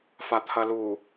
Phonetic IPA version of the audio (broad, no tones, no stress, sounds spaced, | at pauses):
f a t̪ʰ ɐ l u